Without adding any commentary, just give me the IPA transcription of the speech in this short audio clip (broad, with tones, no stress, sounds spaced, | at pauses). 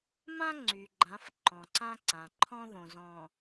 m ã˦ ŋ͡ǀ y˨ ɡ͡ǃ ã˨˦ f ǃ ɔ̃˨ ǀ ã˦ ǀ ã˨ ǃʰ ɔ̃˦ ð õ˨ z ɔ̃˨